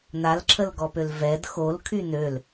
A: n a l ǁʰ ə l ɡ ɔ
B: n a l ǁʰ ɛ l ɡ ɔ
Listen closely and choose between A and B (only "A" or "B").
A